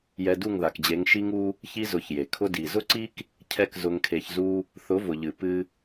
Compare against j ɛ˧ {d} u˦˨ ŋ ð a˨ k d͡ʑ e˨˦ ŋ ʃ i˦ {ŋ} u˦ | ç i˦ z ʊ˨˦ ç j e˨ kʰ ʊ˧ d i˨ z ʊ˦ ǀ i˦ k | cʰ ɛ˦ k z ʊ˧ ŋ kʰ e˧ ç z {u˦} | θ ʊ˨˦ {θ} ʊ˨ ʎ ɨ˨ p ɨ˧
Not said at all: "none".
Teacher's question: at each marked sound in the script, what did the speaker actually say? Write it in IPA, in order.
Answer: d, ŋ, u˦, v

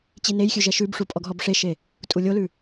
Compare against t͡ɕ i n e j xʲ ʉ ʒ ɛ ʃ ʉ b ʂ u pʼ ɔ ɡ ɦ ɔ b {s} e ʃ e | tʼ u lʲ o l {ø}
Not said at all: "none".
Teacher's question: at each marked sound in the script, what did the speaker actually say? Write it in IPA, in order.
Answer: ʂ, ʉ

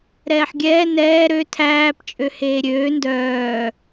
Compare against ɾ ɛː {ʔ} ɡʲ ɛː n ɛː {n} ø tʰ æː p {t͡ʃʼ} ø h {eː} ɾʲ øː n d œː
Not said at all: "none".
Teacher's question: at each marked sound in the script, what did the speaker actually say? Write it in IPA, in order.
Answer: ħ, ɾ, t͡ʃʼ, eː

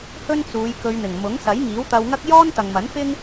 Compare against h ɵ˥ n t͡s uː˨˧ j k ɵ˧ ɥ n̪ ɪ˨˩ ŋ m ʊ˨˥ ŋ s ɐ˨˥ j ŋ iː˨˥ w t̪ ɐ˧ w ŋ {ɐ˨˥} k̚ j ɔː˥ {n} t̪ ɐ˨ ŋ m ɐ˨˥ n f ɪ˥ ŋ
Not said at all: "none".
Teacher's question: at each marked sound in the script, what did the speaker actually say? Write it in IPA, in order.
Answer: ɐ˥, n

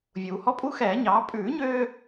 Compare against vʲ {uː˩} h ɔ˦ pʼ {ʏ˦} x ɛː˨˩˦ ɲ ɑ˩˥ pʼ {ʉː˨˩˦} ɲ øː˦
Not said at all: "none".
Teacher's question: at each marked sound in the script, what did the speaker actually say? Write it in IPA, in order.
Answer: uː˩, u˦, ʉː˨˩˦

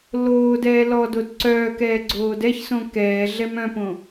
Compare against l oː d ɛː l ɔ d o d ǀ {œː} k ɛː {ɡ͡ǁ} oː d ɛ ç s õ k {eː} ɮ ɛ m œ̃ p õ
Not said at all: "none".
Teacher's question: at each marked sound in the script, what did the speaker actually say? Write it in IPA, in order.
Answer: œː, ɡ͡ǀ, ɛː

